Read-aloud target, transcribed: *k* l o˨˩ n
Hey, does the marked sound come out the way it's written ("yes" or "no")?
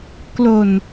yes